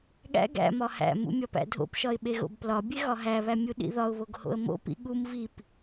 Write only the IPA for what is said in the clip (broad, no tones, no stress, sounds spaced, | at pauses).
ɠ æ̰ ɡ æ̰ m ɒ h æ̰ m ṵ mʲ ɒ p æ̰ dʱ o̰ p ʃ ɒ ɪ̯ ɓ e ɣ o̰ b p l ɒ bʲ e ɣ ɒ ɦ æ β æ mʲ u ɗ ḭ ð ɒ ʊ̯ β o ɡ h o̰ ə̯ m o̰ p ḭ ɠ u m v i p